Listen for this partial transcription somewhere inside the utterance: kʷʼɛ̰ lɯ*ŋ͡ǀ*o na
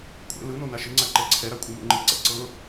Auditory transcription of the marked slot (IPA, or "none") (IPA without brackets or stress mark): n